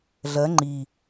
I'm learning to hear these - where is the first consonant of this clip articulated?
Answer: tongue tip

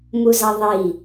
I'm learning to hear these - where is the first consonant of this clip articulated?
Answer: lips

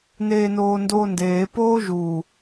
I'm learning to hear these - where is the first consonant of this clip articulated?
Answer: tongue tip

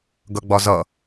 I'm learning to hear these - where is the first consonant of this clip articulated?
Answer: velum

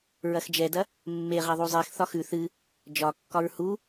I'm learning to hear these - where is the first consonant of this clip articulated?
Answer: tongue tip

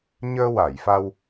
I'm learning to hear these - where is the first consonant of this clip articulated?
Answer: palate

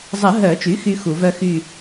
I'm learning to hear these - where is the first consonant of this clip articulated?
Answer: tongue tip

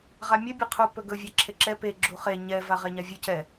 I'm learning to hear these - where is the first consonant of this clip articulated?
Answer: uvula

